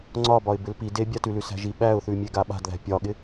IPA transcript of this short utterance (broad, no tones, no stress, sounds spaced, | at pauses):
ŋ͡ǀ ɒ b ɒ ɪ̯ b ɪ l p i d e bʲ a t ʉ l ʉ s æ̤ ʒ i ɓ æ ʊ̯ θ ʉ mʲ e ɡ a ɓ a̤ d ð æ̤ pʲ ɒ ɠ ɪ